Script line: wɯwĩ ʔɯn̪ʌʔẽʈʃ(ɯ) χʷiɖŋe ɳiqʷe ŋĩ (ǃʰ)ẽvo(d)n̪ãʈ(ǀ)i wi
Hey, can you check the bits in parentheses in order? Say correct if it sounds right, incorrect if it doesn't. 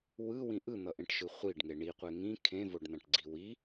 correct, incorrect: kʰ, incorrect: ɖ, incorrect: ɡ͡ǀ

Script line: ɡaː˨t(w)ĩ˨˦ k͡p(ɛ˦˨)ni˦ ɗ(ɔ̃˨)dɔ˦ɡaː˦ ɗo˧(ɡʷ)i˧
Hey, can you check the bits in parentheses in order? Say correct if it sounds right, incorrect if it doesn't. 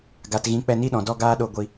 incorrect: ɣ, correct, correct, correct

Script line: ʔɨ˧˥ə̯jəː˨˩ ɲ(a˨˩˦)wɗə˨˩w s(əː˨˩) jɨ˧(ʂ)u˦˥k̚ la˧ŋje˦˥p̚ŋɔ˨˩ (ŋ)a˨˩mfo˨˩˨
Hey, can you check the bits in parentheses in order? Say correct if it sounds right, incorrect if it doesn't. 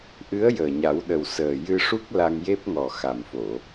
correct, correct, correct, incorrect: x

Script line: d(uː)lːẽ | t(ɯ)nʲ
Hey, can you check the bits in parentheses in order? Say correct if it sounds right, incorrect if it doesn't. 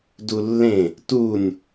incorrect: u, incorrect: u

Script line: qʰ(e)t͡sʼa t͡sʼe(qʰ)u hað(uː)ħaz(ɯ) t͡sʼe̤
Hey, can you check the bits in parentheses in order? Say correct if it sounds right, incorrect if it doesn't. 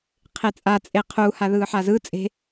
correct, correct, incorrect: ɯː, correct

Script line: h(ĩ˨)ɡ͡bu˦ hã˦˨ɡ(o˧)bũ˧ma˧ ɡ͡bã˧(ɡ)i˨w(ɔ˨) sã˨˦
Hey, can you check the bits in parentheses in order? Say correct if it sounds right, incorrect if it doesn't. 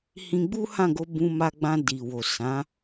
incorrect: ĩ˧, correct, incorrect: d, incorrect: o˨

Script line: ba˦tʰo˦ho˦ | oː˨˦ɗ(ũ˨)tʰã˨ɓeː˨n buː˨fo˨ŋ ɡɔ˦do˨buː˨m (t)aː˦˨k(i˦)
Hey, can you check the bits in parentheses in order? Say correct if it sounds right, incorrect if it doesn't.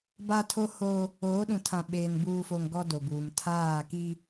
correct, incorrect: tʰ, correct

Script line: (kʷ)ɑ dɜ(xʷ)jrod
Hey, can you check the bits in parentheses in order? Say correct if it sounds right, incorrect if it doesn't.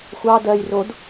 incorrect: xʷ, incorrect: none

